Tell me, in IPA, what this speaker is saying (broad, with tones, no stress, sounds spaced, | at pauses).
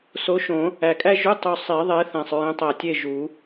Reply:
s o˨˦ ʃ õ˨˩˦ | æ˨˩ kʼ æ˥ ʒ u˧˥˧ tˤ u˨˩ sˤ i˨˩˦ ðˤ e˨˦ θ æ̃˨˩ sˤ ɹ ẽ˨˦ tˤ æ˨˩ tʲ e˦˨ ʒ u˨˩˦